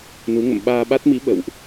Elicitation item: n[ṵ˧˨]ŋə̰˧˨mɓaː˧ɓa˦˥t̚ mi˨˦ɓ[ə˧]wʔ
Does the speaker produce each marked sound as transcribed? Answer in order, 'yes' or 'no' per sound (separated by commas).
no, no